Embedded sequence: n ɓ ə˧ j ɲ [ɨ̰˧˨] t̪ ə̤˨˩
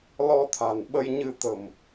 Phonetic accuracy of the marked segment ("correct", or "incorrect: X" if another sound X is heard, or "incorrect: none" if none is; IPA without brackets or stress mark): incorrect: ɨ˧